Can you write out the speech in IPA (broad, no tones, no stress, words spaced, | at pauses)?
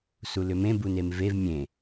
sulʏmẽ bunemvev mʲẽ